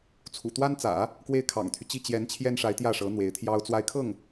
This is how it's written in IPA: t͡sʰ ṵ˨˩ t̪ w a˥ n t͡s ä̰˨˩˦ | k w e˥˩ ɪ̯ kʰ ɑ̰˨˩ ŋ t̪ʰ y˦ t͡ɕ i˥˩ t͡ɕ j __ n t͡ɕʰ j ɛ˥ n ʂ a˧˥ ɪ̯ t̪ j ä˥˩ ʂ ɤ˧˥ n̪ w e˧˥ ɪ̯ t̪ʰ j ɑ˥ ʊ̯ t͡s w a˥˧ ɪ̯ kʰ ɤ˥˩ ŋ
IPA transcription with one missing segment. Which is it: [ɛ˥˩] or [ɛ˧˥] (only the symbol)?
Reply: ɛ˧˥